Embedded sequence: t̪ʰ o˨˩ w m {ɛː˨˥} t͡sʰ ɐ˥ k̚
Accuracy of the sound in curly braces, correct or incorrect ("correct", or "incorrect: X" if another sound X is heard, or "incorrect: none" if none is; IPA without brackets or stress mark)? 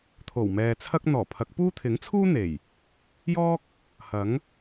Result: incorrect: ɛː˨